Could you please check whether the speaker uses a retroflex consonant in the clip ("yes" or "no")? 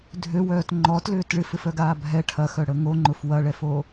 yes